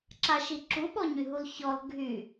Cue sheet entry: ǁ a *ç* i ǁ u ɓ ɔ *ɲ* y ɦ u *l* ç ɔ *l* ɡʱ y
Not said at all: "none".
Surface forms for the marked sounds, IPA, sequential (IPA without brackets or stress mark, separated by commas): ʃ, ɲ, l, l